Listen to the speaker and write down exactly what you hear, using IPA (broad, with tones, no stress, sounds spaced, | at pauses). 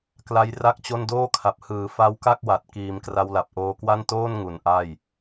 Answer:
k l a˦˥ j r a˥˩ k̚ t͡ɕ o˥˩ n d oː˥˩ kʰ a˨˩ p̚ h ɯː˩˦ f a˦˥ w k a˥˩ k̚ w a˨˩ t̚ k iː˩˦ m k r a˧ w l a˨˩ p̚ ʔ oː˧ k w a˥˩ n t oː˥˩ n ŋ u˩˦ n ʔ a˥˩ j